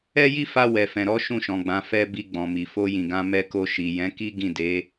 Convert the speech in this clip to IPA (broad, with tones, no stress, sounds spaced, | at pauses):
ɛ˦ j i˦ f a˧ w ɛ˨ f ɛ̃˨ ɾ ɔ˨˦ ʃ ũ˦˨ ʃ ɔ̃˨ ɡ͡b ã˨˦ f ɛ˧ b i˧ ɡ͡b ɔ̃˨ m i˨ f o˧ j ĩ˨ ɡ ã˧ m ɛ˧ k o˧ ʃ i˨ j ɛ̃˨˦ k i˦ ɡ ĩ˦˨ d e˨˦